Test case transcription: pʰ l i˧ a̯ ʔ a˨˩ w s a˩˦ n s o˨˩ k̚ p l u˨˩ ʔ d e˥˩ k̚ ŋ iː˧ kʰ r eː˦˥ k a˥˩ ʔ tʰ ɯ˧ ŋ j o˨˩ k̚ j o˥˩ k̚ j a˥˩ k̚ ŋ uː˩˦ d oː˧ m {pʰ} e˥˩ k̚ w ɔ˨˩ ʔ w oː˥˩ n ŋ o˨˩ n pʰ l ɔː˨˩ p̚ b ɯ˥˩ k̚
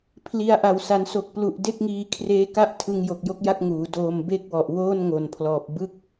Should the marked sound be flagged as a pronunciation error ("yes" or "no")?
yes